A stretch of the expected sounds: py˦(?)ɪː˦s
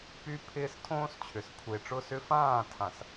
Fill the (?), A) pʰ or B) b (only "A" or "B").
A